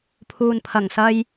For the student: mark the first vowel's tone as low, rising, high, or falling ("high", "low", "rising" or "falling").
low